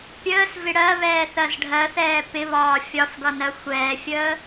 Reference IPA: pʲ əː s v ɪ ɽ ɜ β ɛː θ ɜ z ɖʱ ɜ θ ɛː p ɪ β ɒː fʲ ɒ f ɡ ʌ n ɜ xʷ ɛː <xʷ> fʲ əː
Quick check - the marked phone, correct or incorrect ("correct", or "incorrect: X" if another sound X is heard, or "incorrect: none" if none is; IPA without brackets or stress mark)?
incorrect: none